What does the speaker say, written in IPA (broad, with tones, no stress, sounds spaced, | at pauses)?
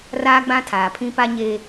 r aː˦ ɡ͡b ã˦ tʰ aː˨ pʰ ĩ˦ p a˦ ɲ e˦